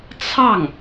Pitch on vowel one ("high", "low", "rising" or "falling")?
falling